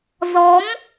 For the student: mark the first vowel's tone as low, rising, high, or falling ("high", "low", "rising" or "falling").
rising